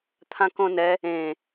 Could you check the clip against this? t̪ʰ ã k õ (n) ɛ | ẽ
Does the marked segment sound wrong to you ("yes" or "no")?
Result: no